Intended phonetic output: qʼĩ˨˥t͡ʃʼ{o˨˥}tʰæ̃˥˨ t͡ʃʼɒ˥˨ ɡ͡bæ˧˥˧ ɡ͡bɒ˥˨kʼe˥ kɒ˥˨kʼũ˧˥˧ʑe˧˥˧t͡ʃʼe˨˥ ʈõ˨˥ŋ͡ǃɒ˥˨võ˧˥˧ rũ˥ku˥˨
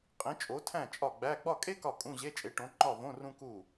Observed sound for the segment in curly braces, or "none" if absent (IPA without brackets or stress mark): o˨˥